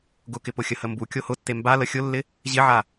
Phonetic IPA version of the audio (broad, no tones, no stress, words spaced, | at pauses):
ɡʊkɪpʊxʲə həmbu kʲohʊtːe mba ləxʲʊlːɪ | ʑɪʕa